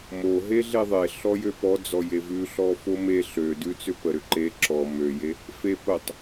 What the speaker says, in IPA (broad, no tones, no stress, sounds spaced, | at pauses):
m o ɦ e ɮ e ðˤ e ɬ ɔ j ø p ɔ d͡z ɔ j e v ʉ ɬ ɔ f o m e ɬ ø d ʉ t͡s ʏ p ə ɾ ʏ ǃ e ǁ ɔ m ø j e | f e p ə tˤ